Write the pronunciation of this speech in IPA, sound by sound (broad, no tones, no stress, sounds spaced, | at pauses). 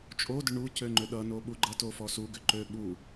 t͡ʃʼ o d ʏ ɳ u c ø ŋ͡ǃ ʏ ɗ ʌ n o ɓ u ɡ͡ǃ ʌ t o f ɔ s u ɡ ʏ ǃ ø ɓ u